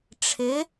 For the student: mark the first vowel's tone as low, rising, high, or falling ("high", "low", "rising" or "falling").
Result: rising